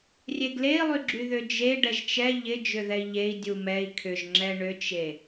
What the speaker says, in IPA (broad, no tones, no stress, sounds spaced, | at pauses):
rʲ e ɡ l e i̯ lˠ y ɡ͡ǁ y ð ʏ d͡ʒ e ɖ ɛ ʒ t͡ʃ ɛ ʎ ɪ d͡ʒ ʏ ð ɛ i̯ ʎ e i̯ dʲ u m ɛ i̯ kʰ ʏ ʒ ŋ͡ǁ ɛ ɳ ʏ t͡ʃ e